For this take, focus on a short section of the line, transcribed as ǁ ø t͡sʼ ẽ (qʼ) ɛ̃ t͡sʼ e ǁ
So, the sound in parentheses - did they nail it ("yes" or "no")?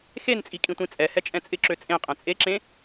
yes